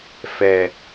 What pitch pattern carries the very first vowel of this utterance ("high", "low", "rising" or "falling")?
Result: low